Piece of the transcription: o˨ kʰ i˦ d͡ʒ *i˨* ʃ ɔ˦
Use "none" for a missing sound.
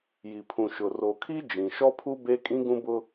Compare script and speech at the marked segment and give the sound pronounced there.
ĩ˨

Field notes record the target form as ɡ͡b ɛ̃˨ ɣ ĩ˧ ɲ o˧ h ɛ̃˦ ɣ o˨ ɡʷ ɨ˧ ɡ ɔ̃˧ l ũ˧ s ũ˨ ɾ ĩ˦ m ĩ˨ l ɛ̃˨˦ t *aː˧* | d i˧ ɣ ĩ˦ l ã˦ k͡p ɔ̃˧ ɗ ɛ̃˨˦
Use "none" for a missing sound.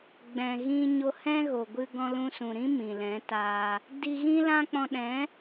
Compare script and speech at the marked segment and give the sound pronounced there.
aː˧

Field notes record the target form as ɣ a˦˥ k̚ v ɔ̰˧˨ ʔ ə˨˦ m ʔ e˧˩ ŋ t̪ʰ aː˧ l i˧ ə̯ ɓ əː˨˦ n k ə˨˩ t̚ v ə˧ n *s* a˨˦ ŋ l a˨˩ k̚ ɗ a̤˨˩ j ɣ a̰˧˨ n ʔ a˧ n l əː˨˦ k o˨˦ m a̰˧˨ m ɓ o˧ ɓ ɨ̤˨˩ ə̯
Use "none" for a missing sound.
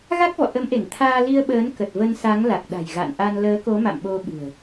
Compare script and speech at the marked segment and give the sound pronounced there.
s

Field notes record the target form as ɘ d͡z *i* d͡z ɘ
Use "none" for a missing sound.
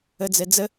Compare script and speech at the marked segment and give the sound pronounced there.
e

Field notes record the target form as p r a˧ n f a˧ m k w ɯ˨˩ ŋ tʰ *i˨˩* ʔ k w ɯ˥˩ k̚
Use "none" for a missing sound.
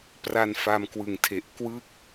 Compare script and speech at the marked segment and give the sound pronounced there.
e˨˩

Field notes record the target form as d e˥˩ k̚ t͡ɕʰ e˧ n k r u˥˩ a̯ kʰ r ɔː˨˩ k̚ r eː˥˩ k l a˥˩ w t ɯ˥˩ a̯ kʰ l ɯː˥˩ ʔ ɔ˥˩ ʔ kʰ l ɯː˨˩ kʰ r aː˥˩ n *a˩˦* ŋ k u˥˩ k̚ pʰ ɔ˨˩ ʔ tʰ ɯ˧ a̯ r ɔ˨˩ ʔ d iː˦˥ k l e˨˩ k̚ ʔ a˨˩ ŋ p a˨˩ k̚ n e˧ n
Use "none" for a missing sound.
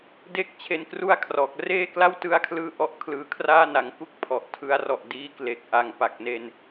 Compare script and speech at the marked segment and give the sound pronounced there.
a˩˦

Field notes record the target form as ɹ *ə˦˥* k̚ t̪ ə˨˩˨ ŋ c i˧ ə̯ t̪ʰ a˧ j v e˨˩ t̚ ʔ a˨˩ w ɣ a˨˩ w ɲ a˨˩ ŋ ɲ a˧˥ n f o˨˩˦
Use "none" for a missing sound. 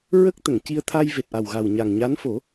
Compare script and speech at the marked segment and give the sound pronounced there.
ə˦˥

